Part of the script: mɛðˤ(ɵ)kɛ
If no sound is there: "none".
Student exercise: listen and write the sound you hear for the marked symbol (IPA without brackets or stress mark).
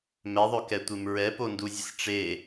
ɵ